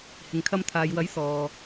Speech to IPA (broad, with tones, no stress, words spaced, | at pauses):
hɪ˨ŋkʰɐ˧mt̪ʰaː˨jwɐ˨˥j sɔː˨